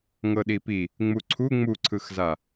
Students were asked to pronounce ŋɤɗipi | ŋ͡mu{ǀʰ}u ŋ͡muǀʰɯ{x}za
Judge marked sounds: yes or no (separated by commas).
yes, yes